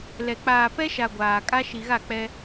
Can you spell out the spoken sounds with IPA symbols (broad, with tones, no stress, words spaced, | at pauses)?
lɛ˨ k͡paː˨pɛ˦ʃa˨ ɡʷaː˨ kʼa˦ʃi˨ɣa˦˨ k͡pɛ˦